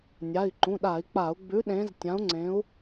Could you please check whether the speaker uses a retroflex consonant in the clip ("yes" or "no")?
no